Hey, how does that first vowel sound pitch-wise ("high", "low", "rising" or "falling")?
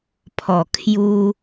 low